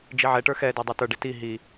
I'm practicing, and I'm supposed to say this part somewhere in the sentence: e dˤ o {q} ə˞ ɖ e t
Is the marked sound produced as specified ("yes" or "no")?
no